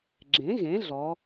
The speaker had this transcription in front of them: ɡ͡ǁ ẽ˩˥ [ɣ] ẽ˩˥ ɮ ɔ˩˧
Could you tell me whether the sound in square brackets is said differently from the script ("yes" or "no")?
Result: no